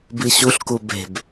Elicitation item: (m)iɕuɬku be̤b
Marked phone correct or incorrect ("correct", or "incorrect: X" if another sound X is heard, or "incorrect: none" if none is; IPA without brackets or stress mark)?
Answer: incorrect: b